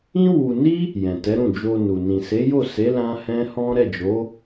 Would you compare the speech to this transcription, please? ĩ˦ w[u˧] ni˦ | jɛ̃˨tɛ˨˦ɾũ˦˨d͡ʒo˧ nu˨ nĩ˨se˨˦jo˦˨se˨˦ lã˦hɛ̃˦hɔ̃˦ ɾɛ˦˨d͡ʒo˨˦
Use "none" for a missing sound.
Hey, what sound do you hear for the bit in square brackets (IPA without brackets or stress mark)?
u˧